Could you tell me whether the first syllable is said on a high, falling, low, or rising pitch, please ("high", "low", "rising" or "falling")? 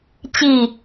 falling